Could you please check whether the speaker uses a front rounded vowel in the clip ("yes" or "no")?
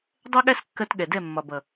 no